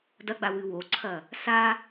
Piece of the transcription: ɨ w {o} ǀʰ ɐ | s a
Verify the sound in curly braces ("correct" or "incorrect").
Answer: correct